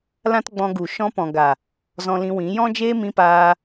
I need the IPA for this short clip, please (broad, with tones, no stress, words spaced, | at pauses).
lã˦tɡ͡bɔ̃˧ɡu˨ ʃɔ̃˧pɔ̃˨ɡa˨ | zɔ̃˧lĩ˧wĩ˨˦ jɔ̃˦d͡ʒeː˦ mĩ˧paː˧